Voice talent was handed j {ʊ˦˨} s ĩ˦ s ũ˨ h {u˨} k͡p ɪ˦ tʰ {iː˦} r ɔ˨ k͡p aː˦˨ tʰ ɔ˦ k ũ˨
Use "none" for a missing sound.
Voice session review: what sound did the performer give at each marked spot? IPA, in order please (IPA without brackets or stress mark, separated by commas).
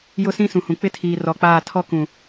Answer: ʊ˦, ũ˨, iː˨